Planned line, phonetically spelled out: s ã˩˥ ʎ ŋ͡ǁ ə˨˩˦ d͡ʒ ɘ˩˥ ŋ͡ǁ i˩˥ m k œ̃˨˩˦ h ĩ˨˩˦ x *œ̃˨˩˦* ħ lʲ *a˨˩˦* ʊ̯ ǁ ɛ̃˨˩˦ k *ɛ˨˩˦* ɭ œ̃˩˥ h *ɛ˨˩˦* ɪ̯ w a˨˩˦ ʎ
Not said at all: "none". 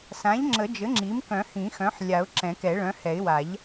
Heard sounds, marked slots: œ̃˩˥, a˨˩˦, ɛ˨˩˦, ɛ˨˩˦

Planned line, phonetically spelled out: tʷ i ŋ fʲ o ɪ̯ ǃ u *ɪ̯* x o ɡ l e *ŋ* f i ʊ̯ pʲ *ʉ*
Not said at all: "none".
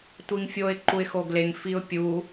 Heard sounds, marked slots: ɪ̯, ŋ, u

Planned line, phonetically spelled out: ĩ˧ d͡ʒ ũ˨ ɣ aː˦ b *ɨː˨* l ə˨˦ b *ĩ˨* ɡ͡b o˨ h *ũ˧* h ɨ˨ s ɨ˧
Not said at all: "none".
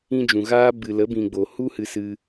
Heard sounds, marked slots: ɨ˨, ĩ˨, u˧

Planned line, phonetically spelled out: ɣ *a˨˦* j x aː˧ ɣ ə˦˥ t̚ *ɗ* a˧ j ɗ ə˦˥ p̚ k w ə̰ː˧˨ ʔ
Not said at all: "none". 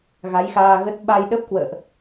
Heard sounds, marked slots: a˨˦, ɓ

